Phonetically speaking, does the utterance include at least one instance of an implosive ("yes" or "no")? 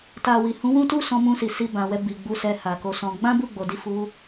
no